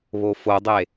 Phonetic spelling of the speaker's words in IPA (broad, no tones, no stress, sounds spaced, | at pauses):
β o f o dˤ e